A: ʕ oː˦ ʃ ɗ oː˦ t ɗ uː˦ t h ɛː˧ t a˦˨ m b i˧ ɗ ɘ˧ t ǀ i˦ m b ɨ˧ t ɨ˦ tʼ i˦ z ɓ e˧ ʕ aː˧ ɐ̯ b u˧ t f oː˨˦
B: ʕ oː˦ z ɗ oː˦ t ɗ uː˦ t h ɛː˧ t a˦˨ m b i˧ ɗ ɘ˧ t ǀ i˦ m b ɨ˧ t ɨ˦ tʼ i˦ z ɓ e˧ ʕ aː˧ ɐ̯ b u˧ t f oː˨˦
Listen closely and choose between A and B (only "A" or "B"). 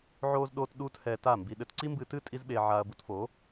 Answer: B